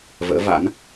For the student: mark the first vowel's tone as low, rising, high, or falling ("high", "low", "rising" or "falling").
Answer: rising